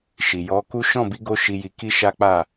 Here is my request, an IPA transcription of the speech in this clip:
ʃi˨jɔ˨˦ku˦ ʃɔ̃˦˨bi˨˦ɡo˧ ʃi˧ji˧ki˦ʃa˦ k͡pa˦˨

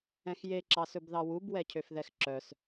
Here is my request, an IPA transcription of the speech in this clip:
ɛ̃xje ǁɑsɵbðɑwub wɛcʰøfðɛxǁœs

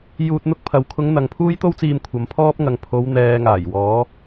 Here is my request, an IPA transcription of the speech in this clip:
juː˧t̚n̪ʊ˥k̚pʰɐ˨˧w kʰʊ˨˧ŋ n̪ɐ˨ŋpʰuː˥jt̪o˥wt͡siː˧m kʷʰɐ˨˧mpʰɔː˥p̚ŋɐ˨ŋ pʰo˨˧w n̪ɛː˨ŋaː˨˩jwɔː˨˧

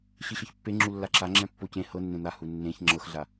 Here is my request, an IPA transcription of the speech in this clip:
ɕɨɕɤçpːe ŋ͡ǁulːaǁa ŋ͡ǁɛ̃pːocẽ hɤnːẽ n̪a hunːẽç ŋ͡ǁɤxɮa

